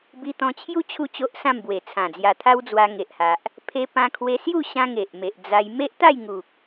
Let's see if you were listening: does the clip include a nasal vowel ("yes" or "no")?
yes